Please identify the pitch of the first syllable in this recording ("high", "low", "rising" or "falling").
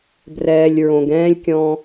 low